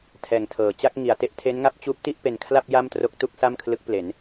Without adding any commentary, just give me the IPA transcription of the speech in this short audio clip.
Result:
tʰ ɛː˨˩ ŋ tʰ ɤː˨˩ t͡ɕ a˥˩ k̚ ŋ i˨˩ a̯ t e˥˩ ʔ tʰ e˦˥ n ŋ a˦˥ p̚ t͡ɕ uː˦˥ p̚ t i˥˩ ʔ p e˧ n kʰ l a˥˩ p̚ j a˥˩ m t r o˦˥ k̚ t u˥˩ k̚ s a˥˩ m kʰ l ɯ˦˥ k̚ p l e˩˦ n

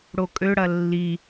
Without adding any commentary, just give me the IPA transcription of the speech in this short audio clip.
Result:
ɽ o kʼ ø ɽ ɐ lː i

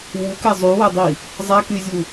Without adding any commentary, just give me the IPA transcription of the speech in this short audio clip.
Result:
w u k ɛ zˤ y w ɛ dˤ i | zˤ a k y zʲ u

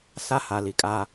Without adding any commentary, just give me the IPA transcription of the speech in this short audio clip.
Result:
s a˦ h a˨ l i˨ kʼ a˦

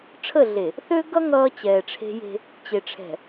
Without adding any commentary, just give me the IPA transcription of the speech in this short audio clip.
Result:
ʈ͡ʂʰ ə˦˨ ɮ e˨ | θ ø˦ ɡ ʌ˦ ŋ ʌː˦ t͡ɕ ɛː˨ ʈ͡ʂʰ e̤˦ j e̤˦ | t͡ɕ e˨ ʈ͡ʂʰ ɛ̤˨

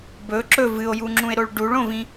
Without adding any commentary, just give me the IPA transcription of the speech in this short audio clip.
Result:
b ɵ ǁ ɵ v ɨ o̯ j u ŋ͡ǁ ũ e̯ ɾ o ɭ ɖ u ɭ õ v ĩ

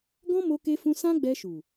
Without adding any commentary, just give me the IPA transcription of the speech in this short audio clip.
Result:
ɡ ɔ̃˦ m o˧ k e˧ f ũ˧ s ã˦ ɡ͡b ɛ˧ ʃ u˨

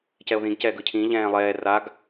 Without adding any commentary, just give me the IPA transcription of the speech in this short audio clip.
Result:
c ɛ o̯ ð ĩ ɡ c ɛ ɡ ɯ cʰ ĩ ʎ ɛ̃ː lˠ ɛː r a ɡ

